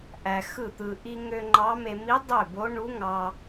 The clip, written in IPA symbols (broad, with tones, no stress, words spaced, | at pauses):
ʔæ˧xɯ˥˩t̪ɯ˧ ʔi˧ŋø˧ ŋ͡ǃɑ˧˥me˧ mi˧˥ dˤø˥˩bo˧˥ ɳu˧˥ŋɑ˧